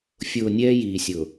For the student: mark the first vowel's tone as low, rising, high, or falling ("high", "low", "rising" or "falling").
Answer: low